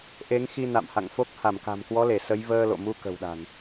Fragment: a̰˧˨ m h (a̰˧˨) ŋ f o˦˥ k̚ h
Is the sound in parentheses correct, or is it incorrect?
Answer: correct